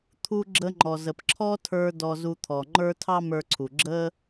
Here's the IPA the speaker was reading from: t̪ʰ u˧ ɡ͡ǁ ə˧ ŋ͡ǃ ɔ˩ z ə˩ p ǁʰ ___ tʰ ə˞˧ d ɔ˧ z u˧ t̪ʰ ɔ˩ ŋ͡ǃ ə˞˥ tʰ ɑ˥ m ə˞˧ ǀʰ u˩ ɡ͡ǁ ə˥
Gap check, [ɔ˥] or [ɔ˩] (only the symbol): ɔ˥